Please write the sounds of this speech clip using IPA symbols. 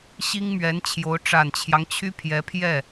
ɕ i˥ ŋ m ɥ ɛ˧˥ n t͡ɕʰ j o˧˥ ʊ̯ ʈ͡ʂ a˨˩ n t͡ɕʰ j ɑ˦ ŋ t͡ɕʰ y˥ pʰ j ɛ˧˥ pʰ j ɛ˥˩

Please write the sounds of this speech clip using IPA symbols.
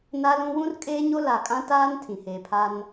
n a˦ l ũ˦ w ũ˦ r kʼ eː˦ ɲ o˦ l a˨ kʼ ã˦ t aː˦ n tʰ ĩ˨ h eː˨ pʰ a˦ n

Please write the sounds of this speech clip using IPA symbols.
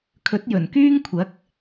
kʰ ɵ˨˥ t̚ j ɵ˨˩ n k yː˥ ŋ kʷʰ ɐ˨˥ k̚

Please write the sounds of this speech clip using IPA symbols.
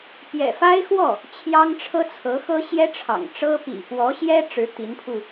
p j ɛ̰˨˩ f a˥ ɪ̯ x w ɔ˥˩ | t͡ɕʰ j ɑ˥ ŋ ʈ͡ʂʰ ɤ˥ t͡sʰ ɤ˧˥ x ɤ˥ ɕ j ɛ˥ ʈ͡ʂʰ ɑ̰˨˩ ŋ ʈ͡ʂ ɤ˥ p ḭ˨˩ p w ɔ˧˥ ɕ j ɛ˥ ʈ͡ʂ ɻ̩˧˥ t̪ i˧˥ n pʰ u˧

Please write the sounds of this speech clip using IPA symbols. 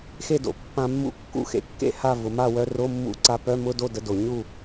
x e˥˨ d o̰˩˧ pː ã˧ mː ṵ˧˥ kː ṵ˥˨ x ḛ˧ kː ḛ˥˨ h a˥˨ v ʊ˩˧ m a˥˨ w œ˧ r o˧˥˧ mː ṵ˧˥˧ ǀ a˧ p œ˧˥˧ m ʊ˧˥˧ d o˥˨ d ə˧˥ d o˩˧ ɲ u˥˨

